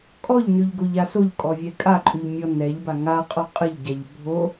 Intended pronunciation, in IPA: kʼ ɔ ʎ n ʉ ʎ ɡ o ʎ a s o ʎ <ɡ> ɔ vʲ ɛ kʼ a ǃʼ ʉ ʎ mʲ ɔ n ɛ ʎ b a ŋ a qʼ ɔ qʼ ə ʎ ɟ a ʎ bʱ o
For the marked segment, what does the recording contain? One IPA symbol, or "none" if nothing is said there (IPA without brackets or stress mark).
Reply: kʼ